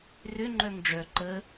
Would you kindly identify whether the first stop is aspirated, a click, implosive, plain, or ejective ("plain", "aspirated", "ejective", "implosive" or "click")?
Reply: click